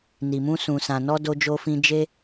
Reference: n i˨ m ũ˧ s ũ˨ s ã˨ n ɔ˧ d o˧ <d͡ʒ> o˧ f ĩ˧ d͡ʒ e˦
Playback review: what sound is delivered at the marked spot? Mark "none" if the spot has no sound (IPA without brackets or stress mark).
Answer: d͡ʒ